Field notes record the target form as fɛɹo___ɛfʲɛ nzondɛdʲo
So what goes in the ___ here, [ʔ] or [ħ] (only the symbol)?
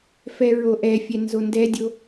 ʔ